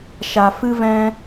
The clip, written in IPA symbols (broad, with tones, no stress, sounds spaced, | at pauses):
ʃ a˨ f ɨ˦ v ɛ̃˦